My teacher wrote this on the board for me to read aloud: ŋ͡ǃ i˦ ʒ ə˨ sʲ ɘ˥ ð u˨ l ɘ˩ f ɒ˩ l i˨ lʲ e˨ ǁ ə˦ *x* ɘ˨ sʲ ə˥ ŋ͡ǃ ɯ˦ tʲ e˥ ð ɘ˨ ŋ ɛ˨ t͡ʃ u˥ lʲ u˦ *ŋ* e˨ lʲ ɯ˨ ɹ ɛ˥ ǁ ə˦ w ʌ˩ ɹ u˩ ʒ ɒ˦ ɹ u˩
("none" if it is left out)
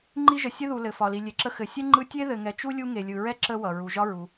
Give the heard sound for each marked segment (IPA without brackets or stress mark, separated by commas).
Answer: x, ŋ